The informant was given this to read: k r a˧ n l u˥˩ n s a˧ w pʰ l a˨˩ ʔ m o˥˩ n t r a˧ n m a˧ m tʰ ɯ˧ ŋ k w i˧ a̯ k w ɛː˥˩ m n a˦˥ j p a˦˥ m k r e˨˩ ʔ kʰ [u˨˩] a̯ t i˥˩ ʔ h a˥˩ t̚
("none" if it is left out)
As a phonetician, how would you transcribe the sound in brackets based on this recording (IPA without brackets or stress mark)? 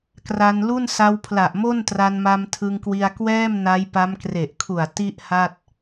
u˨˩